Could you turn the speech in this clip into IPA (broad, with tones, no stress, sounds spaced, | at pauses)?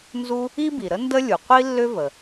n z u˥ | i˥ b i˩ ɾ ə˥ n d ə˥ lʲ u˩ qʷ i˥ lː ʏ˥ v ə˩